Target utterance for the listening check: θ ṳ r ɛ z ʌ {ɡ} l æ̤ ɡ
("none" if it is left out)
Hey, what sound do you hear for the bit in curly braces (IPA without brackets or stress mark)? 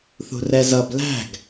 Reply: b